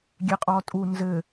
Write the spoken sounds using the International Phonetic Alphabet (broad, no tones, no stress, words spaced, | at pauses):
ɡʲeqʼɔtʼu nzɘ